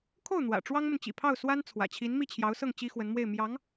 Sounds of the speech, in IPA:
kʰo˥˩ʊ̯n̪wä̰˨˩ ʈ͡ʂwɑ˥ŋmə˨nt͡ɕḭ˨˩pʰɑ˥˩ʊ̯ swa˥nt͡sʰwä̰˨˩t͡ɕʰi˧˥n mi˥˩t͡ɕʰjɑ˧˥ʊ̯sɤ˥˩ŋ t͡ɕi˥xwə˧˥nmwe˥˩ɪ̯ mjɑ˧˥ŋ

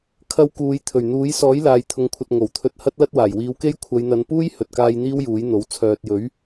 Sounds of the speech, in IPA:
kʰɐ˧wkuː˨˧j t̪ʰɵ˨˩ɥn̪uː˨˥j sɔː˨˥jlaː˨jt̪ʰʊ˨ŋkʷʰɐ˨t̚ ŋo˨˩wt̪ʰɵ˧t̚ hɐ˥t̚lɐ˥t̚waː˨˩j wiː˨˧wke˥j kʷʰɐ˨˧jn̪ɐ˨˧npuː˥j hɵ˨t̚kaː˧j n̪iː˥wjuː˨˥jn̪o˨˥w t͡sʰœː˨t̚jɵ˨˥ɥ

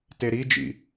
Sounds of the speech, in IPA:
teɾid͡ʒḭ

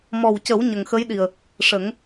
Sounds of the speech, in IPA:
mɔ˨˩wcə˨˩˦w ɲə˨˩ŋxə˧˥jɗi˨˩ə̯ | ʂə˨˩˦ŋ

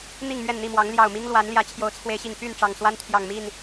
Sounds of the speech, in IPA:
n̪i˥˨ŋ mɥɛ˥˨nn̪i˥˨mwɑ˨˦ŋ ljɑ˨˩ʊ̯mi˦ŋlwa˨˦nljä˨˦ t͡ɕʰjo˨˦ʊ̯t͡sʰwe˨˦ɪ̯ɕi˨˩ŋ py˥˨n ʈ͡ʂɑ˨˩ŋswa˦nt̪ʰjɑ˨˩ŋmi˥˨n

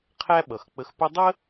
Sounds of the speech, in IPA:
qʰæ˥ɓʌ˩xk͡pə˧x pʊ˥ dˤə˥

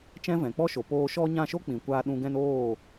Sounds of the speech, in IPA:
t͡ʃɛ̃˦vɛ̃˨ k͡pɔ˦ʃo˨ poː˧ʃɔ˦ ɲã˦˨ʃo˦k͡pĩ˨kʷaː˧ ɗũ˧ɡɛ̃˦n oː˦˨

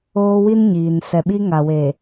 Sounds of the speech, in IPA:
oː˦wi˦n ɲiː˨n sɛ˨ɓi˦ ŋa˨weː˨

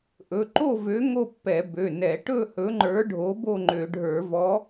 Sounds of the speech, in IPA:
ʔɵ˩˧˩ǃo˥˨vø˨˥ ŋo˥˨pːɛ˧˩˧bø˩˧˩ nɛ˧˩˧ ʈɵ˥˨ hɵ˨˥ŋ͡ǃə˞˨˥ɖʱo˨˥ bo˥˨ŋ͡ǃø˧˩˧ɖʱə˞˧˩˧vɔ˨˥

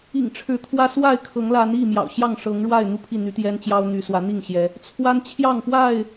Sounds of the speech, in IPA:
ḭ˨˩ŋ ʈ͡ʂʰɻ̩˨˦t̪ʰwä˦ swa˥˨ɪ̯kʰɤ˨˦ŋ la˨˦ni˥˨mjɑ̰˨˩ʊ̯ ɕjɑ˥˨ŋʂɤ˨˦ŋɻwa˥˨ɪ̯ n̪u˥˨pʰi˥˨n̪y˨˦t̪jɛ˦n t͡ɕjɑ˦ʊ̯n̪y˨˦ swä˨˦n̪i˥˨ŋɕjɛ˨˦ | t͡sʰwa˦nt͡ɕʰjɑ˥˨ŋpwa˥˨ɪ̯

